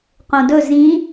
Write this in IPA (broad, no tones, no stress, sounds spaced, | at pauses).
q õ d ɵ z ĩ